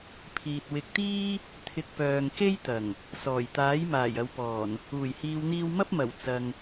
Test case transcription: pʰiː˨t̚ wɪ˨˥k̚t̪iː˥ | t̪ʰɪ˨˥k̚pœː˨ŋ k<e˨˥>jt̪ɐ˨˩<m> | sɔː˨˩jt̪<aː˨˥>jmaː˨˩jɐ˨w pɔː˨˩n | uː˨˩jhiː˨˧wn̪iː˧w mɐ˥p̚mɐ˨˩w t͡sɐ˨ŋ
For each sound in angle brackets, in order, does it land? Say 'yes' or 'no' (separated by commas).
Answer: no, no, yes